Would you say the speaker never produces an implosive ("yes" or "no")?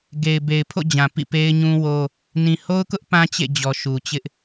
yes